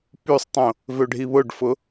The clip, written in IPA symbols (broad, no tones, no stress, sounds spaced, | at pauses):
p y sˤ tˤ õ | v ø ɖʱ i β ʊ ɖ f ʊ